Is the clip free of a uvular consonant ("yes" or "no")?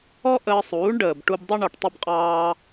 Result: no